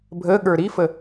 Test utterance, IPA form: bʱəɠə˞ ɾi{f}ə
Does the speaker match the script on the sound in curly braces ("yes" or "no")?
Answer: yes